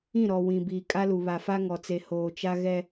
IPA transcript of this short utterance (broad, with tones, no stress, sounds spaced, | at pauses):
ĩ˦˨ ɾ ɔ˨ w ĩ˨ b iː˨ kʼ a˦ l u˨ β a˨ f a˦ ŋ ɔ˨ t͡s e˨ h oː˨ t͡ʃ a˦ ɣ ɛ˦